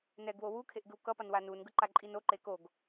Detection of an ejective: present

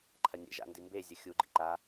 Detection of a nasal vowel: absent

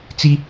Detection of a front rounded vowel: absent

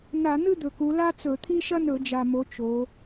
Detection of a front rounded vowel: absent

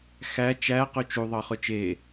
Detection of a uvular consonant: present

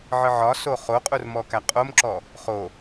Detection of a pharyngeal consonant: present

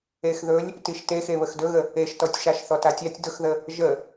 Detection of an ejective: absent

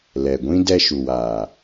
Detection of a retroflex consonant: absent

